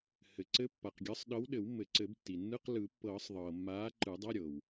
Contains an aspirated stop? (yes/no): no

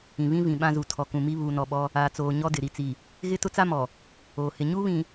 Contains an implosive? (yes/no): yes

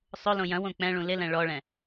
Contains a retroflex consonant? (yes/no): yes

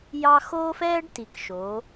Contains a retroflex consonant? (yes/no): yes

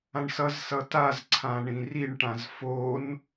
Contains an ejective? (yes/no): no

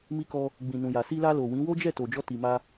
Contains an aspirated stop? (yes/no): no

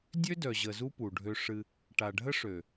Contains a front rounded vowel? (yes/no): yes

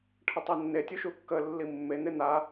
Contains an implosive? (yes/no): no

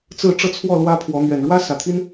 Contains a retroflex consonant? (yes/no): yes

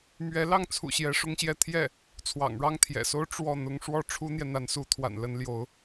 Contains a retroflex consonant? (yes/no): yes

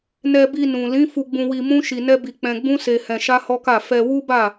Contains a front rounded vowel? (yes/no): no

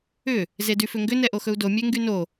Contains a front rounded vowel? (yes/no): yes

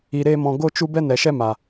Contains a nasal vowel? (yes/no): yes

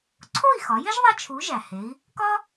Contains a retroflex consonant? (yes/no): no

